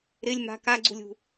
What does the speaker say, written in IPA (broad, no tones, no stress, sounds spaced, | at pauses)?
ɾ ɪ lʲ m a̤ k a ɡ͡ǀ ṳ lʲ ṳ